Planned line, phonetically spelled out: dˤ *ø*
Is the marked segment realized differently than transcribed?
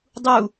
yes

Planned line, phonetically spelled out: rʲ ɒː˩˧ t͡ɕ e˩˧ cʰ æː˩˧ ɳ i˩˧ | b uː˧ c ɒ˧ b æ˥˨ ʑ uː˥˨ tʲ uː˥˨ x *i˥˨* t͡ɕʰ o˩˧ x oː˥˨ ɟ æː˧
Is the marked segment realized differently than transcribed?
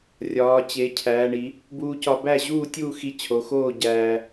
yes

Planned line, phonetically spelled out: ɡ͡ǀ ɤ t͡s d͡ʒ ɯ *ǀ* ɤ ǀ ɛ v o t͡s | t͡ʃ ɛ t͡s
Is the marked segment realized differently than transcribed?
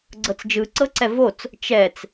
no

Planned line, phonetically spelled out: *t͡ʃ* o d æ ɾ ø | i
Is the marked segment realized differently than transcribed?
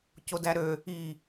yes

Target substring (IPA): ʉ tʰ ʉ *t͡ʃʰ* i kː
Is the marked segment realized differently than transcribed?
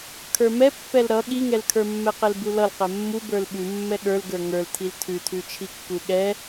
no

